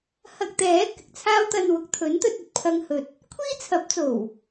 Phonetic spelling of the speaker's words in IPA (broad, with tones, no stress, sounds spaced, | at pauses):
h ɐ˧ k̚ t̪ ɛː˨˥ k ɪ˨ k̚ t͡sʰ aː˥ w t̪ ɐ˧ n w ʊ˨ k̚ t̪ʰ ɵ˨˥ n t̪ ɵ˧ t̚ ɵ˨ t̚ pʰ ɐ˧ ŋ h ɵ˨ t̚ | kʷʰ iː˥ t͡sʰ ɐ˨˥ p̚ t͡s o˨˩ w